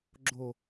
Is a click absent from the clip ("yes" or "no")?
no